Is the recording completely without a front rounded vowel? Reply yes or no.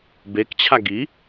yes